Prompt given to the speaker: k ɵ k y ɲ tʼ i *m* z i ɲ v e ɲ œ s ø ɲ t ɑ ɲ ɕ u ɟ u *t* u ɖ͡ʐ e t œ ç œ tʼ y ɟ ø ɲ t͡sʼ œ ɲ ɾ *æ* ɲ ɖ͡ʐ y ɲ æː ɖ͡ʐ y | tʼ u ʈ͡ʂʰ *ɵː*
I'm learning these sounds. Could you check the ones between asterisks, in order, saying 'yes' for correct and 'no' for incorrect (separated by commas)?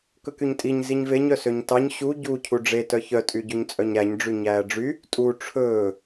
no, no, yes, yes